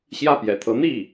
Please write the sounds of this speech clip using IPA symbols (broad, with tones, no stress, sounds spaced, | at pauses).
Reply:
ɕ j ä˥˩ p j ɛ̰˨˩ t̪ʰ ɤ˧˥ n̪ i˥˩